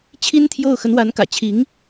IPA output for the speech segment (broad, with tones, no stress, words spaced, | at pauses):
t͡ɕʰi˥nt̪ʰjo˥˩ʊ̯ xə˧˥nwa˧˥nkä̰˨˩ t͡ɕʰi˧˥ŋ